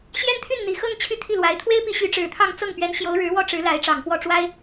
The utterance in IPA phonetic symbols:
ɕjɛ˥nt̪ʰy˥˩nn̪i˨˩xɤ˥˧ŋ t͡ɕʰy˥˧t̪ʰi˥˩lwa˧˥ɪ̯ t̪ʰwe˥ɪ̯pi˧˥ ɕy˧˥ʈ͡ʂɻ̩˨˩t̪ʰɑ˥˧ŋ t͡sɤ˥˩ŋ pɥɛ˧˥n ɕjo˧˥ʊ̯ɻɻ̩˧˥wɔ˥ ʈ͡ʂɻ̩˧˥la˧˥ɪ̯ ʈ͡ʂɑ˨˩ŋpwɔ˥˩ ʈ͡ʂwa˥ɪ̯

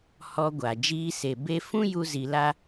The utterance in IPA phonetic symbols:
hɔ˧ɡʷa˨ d͡ʒiː˧se˨be˦ fũ˦ju˧ zi˧la˦

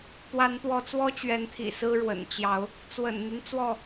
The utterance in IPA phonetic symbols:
t̪wa˨˦nt̪wɔ˨˦ t͡swɔ˦t͡ɕɥɛ˨˦nt̪ʰḭ˨˩ sɹ̩˦ɻwə̰˨˩n t͡ɕjɑ˨˦ʊ̯ | t͡swə̰˨˩nn̪y˦n t͡swɔ˥˨

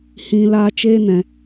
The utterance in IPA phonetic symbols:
hĩ˨ laː˧t͡ʃeː˦nɛ̃˨

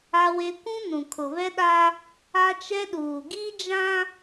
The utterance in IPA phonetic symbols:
a˦we˦ kʷũ˦ nũ˨kʰʊ˨βɛ˦ɗa˦ | a˦t͡ʃɛ˦ ɗuː˨ɡi˦ d͡ʒã˦

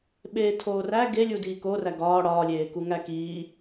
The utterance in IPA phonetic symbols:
ɓeːtʰoːræ ɡelʲu diːkoræ ɡɒː ɽɒːlʲeːku ŋækiː

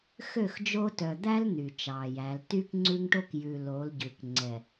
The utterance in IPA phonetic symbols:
xø˦˨xd͡ʒo˦ tœ˨d̪æ˦l n̪y˨t͡ʃɑ˨jæ˨˦l ty˦k ŋ͡ǀʉ˦ŋʈo˦k jʉ˨ lo˨˦l ɟʉ˨kŋ͡ǀɛ˨

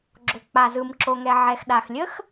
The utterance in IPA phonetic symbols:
ɡ͡ǁo˩k͡pa˩zɯ˩m ǁo˩ŋɛ˩ ʕɛ˩xɗa˩x lʲə˥x

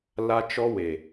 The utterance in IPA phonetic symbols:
la˦t͡ʃɔ˦ we˨

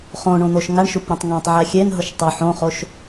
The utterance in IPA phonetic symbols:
χõɳõn̪oʃ ŋaɳʃupɾʲũtˤ ŋãtˤʕɛ xʲenɦʊʃ tˤo ħõχoʃ

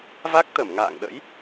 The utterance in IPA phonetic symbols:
va˦˥k̚ t̪ə˧˩mŋa̰ː˧˨ŋɗə̰˧˥j

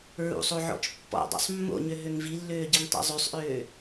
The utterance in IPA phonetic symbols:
ɹṵsˤoʕɔ̰t͡ʃ pːɔ̰dˤṵsˤ mːo̰ɲø ɦøŋvilːøːɟiŋ tˤo̰zˤøsˤʔøː

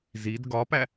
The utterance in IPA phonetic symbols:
zid ɡɒpæ

